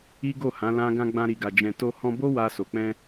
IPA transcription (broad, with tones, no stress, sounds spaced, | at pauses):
i˦ ɡ o˦˨ h ã˨˦ l ã˦ ɡ ã˧ ɡ͡b ã˧ ɾ i˨ ɡ a˨ d͡ʒ ɛ̃˨ t o˧ h ɔ̃˧ b o˦ w a˧ s o˨ k͡p ɛ̃˧